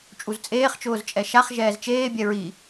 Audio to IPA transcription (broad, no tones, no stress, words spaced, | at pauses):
t͡ʃʼuzt͡sʼeːχt͡ʃʊːz t͡ʃʼɛʃaχ ʒɛːzt͡ʃeːbʲɛ ɹi